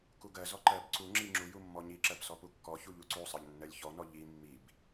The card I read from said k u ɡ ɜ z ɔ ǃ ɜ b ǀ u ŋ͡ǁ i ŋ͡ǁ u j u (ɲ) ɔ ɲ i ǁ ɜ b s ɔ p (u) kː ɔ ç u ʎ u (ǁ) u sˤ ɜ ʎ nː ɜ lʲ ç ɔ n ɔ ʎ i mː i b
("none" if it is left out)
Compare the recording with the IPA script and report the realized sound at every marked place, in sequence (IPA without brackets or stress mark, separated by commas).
mː, u, ǀ